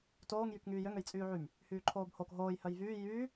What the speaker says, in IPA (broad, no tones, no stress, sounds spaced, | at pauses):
t oː ŋ j y k ŋ yː j ø ŋ ø j t͡sʼ yː ʕ y m | h yː ǃʰ oː b h o k ɦ oː j h œ j v yː j yː